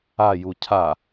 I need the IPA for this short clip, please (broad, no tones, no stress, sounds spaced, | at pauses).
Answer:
a j u cʰ a